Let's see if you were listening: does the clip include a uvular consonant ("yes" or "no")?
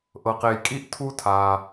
yes